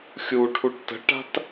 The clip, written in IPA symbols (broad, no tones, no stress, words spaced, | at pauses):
xʲu ʈʰuʈtə̤ʈa̤t